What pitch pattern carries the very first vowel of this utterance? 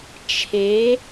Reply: rising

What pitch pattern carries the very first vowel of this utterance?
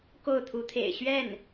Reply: falling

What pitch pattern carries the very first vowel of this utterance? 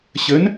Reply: rising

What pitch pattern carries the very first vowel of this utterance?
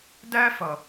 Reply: high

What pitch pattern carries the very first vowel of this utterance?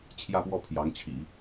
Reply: falling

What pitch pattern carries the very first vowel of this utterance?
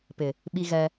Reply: low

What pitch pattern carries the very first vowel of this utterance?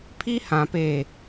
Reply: high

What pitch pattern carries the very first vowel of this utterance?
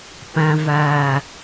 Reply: low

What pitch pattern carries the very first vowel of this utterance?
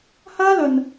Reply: high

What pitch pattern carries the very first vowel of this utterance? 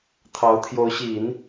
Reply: rising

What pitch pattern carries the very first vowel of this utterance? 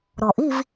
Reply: low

